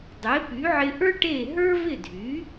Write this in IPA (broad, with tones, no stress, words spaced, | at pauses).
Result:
dˤe˩˥ py˩˥ʕɪ˧ʔə˞˥ ʈe˥˩ ɦə˞˥vɪ˥˩ dʱy˩˥